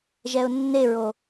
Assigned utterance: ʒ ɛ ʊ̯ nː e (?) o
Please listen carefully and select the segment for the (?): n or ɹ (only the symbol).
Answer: ɹ